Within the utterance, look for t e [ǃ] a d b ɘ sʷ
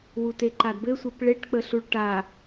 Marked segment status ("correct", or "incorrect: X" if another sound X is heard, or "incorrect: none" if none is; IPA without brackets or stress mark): correct